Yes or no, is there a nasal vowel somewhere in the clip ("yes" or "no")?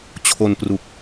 no